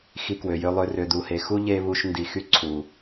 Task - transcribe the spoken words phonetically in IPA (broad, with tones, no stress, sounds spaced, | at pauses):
x i˧ k w ø˨ j ø˧ lˠ ø˧ r ø˨ d u˨ h e˨ x u˦ ʎ e˦ β u˧ ʃ n d i˨ x y˧ ǀʰ u˨